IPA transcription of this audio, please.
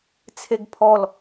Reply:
t͡sʰ e ɡ pʰ ɔ l

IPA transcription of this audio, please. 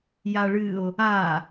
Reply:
j a ɭ ɨ o̯ | a

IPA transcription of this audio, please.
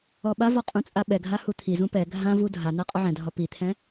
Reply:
ɔ ɓ a v ɔ qʼ ũ t͡sʼ a ɓ ɛ ɡʱ a h u t̪ʰ i z ũ p ɛ ɡʱ ã v u dʱ a n̪ a qʼ ɔ ʕ ɛ̃ dʱ ɒ p i t̪ʰ ɛ̃

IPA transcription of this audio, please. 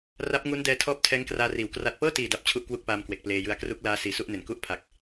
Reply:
r a˦˥ p̚ ŋ u˦˥ n d ɛː˧ tʰ ɔː˦˥ p̚ tʰ ɛː˦˥ ŋ k r aː˧ r iː˩˦ w k r a˨˩ t̚ p ɤː˥˩ t iː˨˩ d a˨˩ p̚ t͡ɕʰ u˦˥ ʔ k w u˥˩ k̚ p aː˧ m k w e˨˩ k̚ p l eː˧ j ɯ˦˥ a̯ k r u˦˥ k̚ l aː˦˥ s iː˨˩ s u˥˩ ʔ n e˩˦ n k u˥˩ ʔ pʰ a˨˩ k̚

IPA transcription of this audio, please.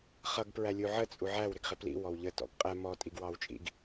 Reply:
χ ʌ ɡ p ɹ æ lʲ u ʕ ə t͡sʼ u ʕ æ w ɾ ɪ ɡ χ ɪ p l ḭ w ɔ w ʎ ə t ɔ̰ ɡ qʼ ɛ m ɔ tʼ i ɡ w ɑ w t͡ʃʼ ḭ ɡ

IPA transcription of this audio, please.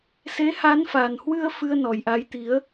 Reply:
s e˨˦ h aː˨˦ n f a˨˩ n h w ɨ˧ ə̯ f ɨ˧ ə̯ n ɔ˨˩ j ʔ a˨˦ j t̪ i˨˦ ə̯

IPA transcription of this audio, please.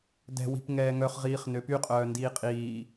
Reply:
d ɛ̤ w i̤ p ŋ ɛː ŋ œ χ ʁ iː χ n ø p y qʼ œː n d iː qʼ iː

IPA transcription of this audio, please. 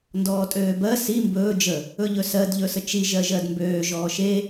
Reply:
n d ɔː tʼ øː b ɜ s i m b ɵː d͡ʒ ə | ɵ ʎ ɵ s ɜ d ʎ ɵ s ə t͡ʃ i ʒ ɜ ʒ ɜ d m b øː ʒ ɔː ʃ e

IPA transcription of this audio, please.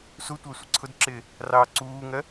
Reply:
s u tʷ æ sʷ ɪ ǀʰ ʊ d ǁ ɪː | r ɑː ǀ uː ŋ ɜ

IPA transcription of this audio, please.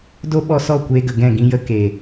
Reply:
d o˦ ɓ ɔ˧ s ɔ˦˨ kʷ eː˧ ɡ ə˨ ɡ ɛ̃˦˨ ɡ ĩ˧ j ə˧ k eː˨

